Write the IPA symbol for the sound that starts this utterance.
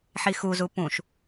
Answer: ħ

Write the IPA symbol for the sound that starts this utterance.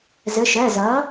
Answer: z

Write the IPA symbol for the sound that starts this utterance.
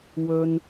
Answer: w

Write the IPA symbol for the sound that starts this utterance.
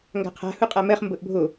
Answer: ŋ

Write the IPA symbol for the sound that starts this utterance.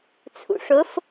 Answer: t͡sʰ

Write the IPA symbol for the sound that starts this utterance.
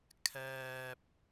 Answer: kʰ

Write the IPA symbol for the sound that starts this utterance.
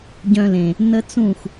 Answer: ɟ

